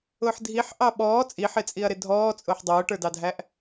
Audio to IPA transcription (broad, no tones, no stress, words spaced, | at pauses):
ʊːħdʱiħ ʔɑɓɔː t͡sʼiħɪt͡sʼiɐ̯ɾɪ dʱɔːt͡sʼʊːħ dˤʊːʈə˞dɑdʱæʔ